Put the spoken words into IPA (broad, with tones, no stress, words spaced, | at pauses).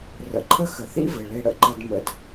rə̰˨ǃʰə˦ xə˨θḭ˦vɘ˨ ɭe˦ɽə̰˦ǃə˦d mə̰˦d